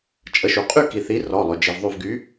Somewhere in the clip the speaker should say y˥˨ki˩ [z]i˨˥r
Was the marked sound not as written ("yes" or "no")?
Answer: yes